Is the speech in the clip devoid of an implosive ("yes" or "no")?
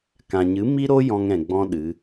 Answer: no